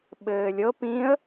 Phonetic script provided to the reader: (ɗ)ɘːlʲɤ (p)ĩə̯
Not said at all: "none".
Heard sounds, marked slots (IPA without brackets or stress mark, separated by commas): ɓ, p